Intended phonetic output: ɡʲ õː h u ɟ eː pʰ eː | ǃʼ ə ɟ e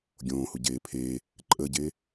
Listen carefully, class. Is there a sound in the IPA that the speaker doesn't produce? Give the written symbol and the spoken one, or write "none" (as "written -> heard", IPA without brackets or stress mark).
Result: none